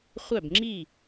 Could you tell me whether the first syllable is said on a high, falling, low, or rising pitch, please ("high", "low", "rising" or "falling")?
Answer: falling